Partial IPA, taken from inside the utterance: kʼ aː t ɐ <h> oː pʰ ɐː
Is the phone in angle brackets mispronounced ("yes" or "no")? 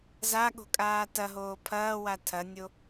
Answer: yes